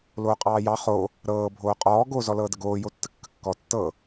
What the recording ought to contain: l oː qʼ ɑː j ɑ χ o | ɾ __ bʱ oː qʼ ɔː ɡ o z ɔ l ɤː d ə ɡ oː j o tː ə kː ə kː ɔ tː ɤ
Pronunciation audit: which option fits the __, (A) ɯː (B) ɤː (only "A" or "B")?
B